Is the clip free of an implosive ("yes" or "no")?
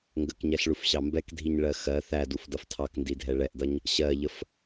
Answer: yes